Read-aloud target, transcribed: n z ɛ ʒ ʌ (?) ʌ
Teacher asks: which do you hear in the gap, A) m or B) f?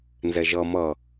A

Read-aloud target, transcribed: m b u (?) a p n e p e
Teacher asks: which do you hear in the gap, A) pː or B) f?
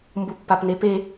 A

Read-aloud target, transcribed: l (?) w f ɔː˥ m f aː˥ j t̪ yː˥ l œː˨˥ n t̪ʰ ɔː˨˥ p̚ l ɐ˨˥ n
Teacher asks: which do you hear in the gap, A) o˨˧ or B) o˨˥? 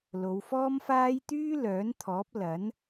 A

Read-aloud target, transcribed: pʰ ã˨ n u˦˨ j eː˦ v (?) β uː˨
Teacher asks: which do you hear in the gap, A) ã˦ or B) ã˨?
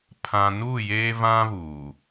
A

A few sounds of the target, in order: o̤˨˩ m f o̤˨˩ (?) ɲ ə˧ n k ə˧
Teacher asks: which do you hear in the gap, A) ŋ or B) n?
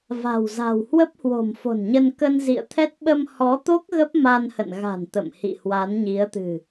B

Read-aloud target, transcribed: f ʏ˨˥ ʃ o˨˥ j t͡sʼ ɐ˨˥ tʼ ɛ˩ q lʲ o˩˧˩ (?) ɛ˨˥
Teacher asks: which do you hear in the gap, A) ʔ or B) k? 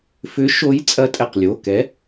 B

